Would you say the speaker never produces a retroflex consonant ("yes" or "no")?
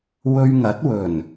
yes